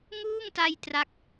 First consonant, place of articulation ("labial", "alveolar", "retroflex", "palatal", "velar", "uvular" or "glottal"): velar